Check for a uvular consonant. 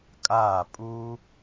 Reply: absent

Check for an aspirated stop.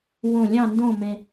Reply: absent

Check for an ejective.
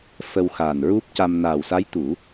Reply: absent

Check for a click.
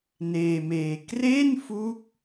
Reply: absent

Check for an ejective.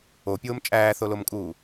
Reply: present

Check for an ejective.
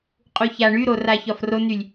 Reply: present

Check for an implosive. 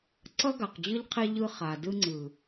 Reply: absent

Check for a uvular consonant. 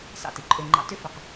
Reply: present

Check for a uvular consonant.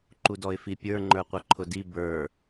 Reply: present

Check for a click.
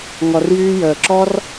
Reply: present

